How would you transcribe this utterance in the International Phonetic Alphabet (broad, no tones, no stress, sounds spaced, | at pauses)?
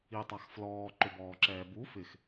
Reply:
i tˤ a x f l ɔː ǃ ʊ b ɔː ǁ ɛː b u f ɪ x